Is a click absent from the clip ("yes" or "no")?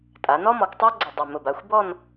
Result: no